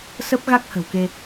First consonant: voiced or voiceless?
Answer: voiceless